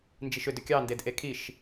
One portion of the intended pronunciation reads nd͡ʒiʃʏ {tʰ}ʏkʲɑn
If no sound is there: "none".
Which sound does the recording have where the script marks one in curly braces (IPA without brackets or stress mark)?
d